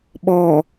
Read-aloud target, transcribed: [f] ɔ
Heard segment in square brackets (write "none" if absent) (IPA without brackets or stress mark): ɓ